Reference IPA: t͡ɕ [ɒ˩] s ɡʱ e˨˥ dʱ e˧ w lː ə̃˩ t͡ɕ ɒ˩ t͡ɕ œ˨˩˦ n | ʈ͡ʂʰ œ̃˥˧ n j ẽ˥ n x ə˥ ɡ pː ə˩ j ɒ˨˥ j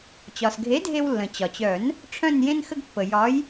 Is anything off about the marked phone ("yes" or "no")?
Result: no